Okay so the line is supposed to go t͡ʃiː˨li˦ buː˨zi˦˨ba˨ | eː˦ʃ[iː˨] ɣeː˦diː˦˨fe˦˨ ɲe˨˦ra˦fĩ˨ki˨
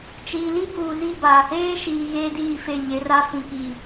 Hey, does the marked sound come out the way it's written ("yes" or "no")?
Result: yes